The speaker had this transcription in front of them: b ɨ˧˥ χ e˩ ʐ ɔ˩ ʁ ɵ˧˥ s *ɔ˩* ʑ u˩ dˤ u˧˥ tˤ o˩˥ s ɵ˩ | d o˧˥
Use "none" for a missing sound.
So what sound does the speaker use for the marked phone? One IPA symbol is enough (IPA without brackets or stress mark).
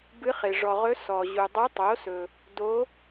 ɔ˩